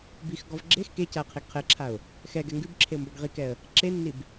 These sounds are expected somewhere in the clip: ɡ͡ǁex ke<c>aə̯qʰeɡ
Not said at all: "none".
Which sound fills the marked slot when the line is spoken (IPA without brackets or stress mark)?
c